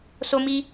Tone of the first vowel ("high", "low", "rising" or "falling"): high